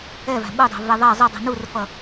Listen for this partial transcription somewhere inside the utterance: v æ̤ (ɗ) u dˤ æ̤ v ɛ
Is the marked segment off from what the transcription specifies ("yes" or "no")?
yes